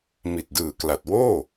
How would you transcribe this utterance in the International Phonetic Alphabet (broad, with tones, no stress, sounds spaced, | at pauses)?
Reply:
m i˨˩ t̚ d ɯː˨˩ k l a˨˩ t̚ w oː˥˩